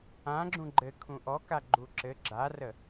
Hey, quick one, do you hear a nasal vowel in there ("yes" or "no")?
yes